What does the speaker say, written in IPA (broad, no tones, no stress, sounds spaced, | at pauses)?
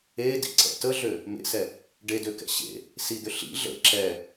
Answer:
e d ḭ ǀ ɛ̰ t ə ɮ ø | m ḛ s ɛ | ɖ e d ø k ɛ̰ ɕ ḛ | s i d̪ ʏ ɬ ḭ ɮ ə̰ ǁ ɛ